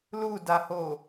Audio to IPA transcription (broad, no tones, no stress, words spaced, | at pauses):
ludaho